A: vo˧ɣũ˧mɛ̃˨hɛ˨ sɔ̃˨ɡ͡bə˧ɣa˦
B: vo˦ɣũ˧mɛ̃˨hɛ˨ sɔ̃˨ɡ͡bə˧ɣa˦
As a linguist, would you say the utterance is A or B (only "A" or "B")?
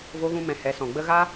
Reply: A